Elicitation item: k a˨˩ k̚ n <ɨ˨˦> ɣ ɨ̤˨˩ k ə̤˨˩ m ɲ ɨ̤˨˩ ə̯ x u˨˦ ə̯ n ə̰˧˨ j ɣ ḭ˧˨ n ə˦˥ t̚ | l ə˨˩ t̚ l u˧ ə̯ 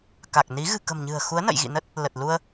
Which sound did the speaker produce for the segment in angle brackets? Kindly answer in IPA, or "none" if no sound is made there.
i˨˦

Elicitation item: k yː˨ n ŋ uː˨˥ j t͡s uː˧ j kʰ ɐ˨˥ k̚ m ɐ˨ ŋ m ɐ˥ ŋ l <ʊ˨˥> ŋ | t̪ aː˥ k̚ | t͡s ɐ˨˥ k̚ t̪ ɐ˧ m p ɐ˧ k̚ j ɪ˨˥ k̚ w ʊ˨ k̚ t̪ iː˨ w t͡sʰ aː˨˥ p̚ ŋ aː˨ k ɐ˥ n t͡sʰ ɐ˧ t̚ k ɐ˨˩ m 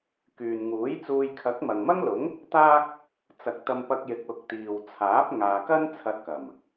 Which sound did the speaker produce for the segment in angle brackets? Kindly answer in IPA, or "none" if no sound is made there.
ʊ˨˥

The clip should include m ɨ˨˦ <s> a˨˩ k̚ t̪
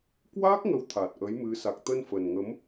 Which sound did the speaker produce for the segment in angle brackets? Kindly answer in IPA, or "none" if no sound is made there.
s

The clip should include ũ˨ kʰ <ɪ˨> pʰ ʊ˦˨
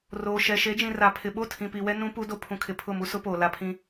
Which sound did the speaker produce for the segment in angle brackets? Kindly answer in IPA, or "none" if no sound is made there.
ɪ˨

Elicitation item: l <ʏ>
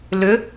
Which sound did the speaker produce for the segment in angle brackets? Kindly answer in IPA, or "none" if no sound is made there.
ʏ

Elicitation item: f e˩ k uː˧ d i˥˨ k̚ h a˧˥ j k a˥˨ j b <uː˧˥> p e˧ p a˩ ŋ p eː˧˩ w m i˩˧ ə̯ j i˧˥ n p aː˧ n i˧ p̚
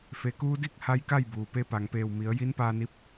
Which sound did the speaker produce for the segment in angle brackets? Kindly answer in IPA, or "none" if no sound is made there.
uː˩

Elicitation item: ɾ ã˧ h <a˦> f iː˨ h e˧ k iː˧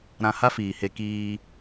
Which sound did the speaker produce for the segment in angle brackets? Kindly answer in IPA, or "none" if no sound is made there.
a˦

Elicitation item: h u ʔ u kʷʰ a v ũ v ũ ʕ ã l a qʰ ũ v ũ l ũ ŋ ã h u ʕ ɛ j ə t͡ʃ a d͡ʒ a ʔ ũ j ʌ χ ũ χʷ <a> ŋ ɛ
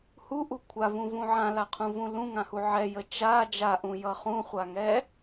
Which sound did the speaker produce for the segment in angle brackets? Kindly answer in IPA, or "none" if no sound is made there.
a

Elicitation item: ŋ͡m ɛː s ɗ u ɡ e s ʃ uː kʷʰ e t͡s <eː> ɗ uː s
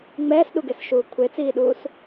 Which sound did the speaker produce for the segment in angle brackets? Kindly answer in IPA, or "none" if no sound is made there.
iː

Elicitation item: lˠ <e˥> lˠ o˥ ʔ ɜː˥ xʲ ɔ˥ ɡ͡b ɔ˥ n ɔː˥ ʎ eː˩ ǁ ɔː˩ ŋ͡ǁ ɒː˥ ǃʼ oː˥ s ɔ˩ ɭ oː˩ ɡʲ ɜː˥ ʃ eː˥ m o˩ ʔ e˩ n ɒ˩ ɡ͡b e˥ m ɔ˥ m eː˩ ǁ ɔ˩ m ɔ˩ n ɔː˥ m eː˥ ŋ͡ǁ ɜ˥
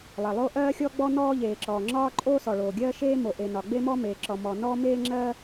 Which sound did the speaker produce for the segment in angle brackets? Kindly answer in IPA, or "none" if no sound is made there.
e˩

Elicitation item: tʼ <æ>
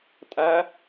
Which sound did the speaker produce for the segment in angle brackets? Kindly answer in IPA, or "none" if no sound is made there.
æ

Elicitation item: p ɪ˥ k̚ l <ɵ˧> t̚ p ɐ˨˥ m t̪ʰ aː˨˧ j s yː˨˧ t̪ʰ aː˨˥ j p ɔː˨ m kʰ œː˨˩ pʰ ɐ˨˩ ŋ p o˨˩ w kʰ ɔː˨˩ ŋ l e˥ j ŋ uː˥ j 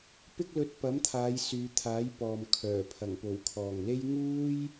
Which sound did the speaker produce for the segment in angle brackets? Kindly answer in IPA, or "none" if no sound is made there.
ɵ˧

